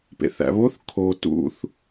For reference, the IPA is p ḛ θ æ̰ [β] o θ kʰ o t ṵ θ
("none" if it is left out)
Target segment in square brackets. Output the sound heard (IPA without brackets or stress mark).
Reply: β